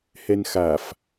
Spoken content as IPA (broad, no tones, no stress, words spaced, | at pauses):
hɛnxaf